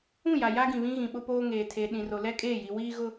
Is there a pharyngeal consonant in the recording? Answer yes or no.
no